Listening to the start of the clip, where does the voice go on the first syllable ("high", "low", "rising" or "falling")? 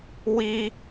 high